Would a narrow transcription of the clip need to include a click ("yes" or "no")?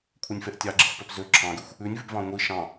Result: yes